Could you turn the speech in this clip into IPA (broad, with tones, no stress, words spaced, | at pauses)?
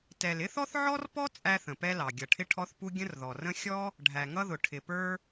tɛ˩lɪ˥θɔ˥θ ʕɔ˥rpɔ˥ t͡sʼæ˥θə̃˩pɛ˥lɑ˩ ɡʲʌ˩ʈʰɪ˥ʈʰɔ˥θpu˥ ɡʲə̃˥rðɔ˩rə̃˥ xʲɔ˥ | ɖʱæ˩ŋʌ˥ðʊ˩ ʈʰɪ˩pə˞˥